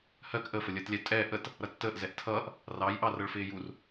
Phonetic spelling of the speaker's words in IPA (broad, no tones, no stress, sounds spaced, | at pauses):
h ɜ k ʔ ə f ə lʲ əː t lʲ ɛ tʼ ɛ ʔ ə t | ɾ ʌ tː əː ʔ z ɛ ʔ tʰ ʌː ʔ | r ɑ j ʔ ɑ r ʌ ɭ f ɪː j u r